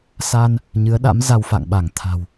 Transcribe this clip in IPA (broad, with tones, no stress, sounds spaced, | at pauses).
s a˧ n | ɲ ɨ˨˦ ə̯ ɗ a̰˧˥ m z a˧ w f a̰˧˨ ŋ ɓ a˧˩ ŋ t̪ʰ a̤˨˩ w